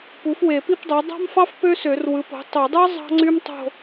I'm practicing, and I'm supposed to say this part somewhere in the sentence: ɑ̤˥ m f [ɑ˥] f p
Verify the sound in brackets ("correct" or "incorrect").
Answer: correct